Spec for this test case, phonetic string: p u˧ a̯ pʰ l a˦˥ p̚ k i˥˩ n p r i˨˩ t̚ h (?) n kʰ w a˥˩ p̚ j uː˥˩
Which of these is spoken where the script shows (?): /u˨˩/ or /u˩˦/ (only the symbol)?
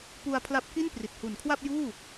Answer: u˨˩